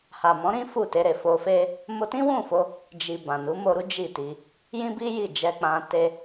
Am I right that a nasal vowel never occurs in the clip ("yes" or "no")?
no